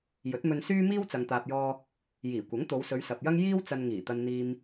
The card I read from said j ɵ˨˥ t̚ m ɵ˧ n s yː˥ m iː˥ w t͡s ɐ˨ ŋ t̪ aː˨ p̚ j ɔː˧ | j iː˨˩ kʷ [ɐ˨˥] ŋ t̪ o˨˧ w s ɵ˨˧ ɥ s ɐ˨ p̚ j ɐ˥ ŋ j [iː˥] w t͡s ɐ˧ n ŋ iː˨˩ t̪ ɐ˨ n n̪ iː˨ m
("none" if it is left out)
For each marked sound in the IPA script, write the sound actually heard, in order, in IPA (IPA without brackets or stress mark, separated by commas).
ɐ˨˥, iː˥